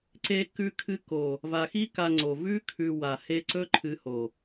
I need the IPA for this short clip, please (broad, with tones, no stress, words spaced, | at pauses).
ǀe˧ kʉ˧kʰɨ˧ko˨ | va˨xi˦ ka˧ŋ͡ǀo˨ vʉ˦kʰʉ˨ wa˨ he˧ǀɵ˦ ǃʰɨ˧ho˨